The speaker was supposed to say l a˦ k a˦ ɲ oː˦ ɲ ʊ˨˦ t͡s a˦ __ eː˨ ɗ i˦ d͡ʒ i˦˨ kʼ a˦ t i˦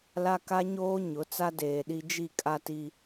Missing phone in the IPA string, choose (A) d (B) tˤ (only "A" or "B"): A